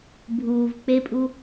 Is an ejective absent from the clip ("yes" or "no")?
no